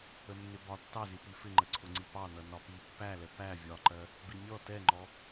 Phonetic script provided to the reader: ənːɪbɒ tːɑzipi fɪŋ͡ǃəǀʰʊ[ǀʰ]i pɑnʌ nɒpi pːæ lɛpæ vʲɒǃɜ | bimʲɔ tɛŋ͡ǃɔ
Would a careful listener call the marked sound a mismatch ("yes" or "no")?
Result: yes